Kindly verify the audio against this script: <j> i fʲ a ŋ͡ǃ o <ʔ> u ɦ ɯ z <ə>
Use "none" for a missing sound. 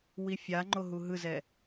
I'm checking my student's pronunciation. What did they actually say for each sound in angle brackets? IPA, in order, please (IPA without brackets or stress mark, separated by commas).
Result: w, ɦ, ɛ